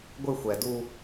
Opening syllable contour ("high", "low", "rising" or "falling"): falling